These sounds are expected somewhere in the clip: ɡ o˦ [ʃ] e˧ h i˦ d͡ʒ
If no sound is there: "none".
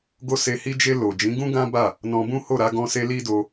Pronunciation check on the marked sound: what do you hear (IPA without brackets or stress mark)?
s